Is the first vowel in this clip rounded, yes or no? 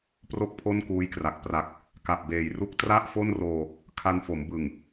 yes